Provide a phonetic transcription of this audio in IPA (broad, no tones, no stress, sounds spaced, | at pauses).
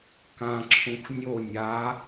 k ã ǁʰ ũ x nʲ o nʲ a